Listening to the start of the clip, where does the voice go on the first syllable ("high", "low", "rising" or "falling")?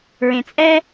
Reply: low